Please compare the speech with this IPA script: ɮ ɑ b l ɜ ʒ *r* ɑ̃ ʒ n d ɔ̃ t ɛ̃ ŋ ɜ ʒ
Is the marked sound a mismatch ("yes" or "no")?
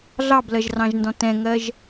no